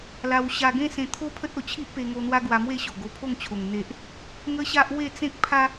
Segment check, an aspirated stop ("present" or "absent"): present